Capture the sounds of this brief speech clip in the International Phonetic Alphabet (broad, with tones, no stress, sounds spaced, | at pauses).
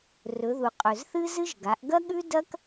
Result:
r ɵ˩˧ ð u˩ qʼ ɵ˩ z θ ɨ˥ z ɨ˥ ʒ ɡ a˩˧ ʔ ɡ ɐ˥ ɠ ʉ˥ d ɐ˥ k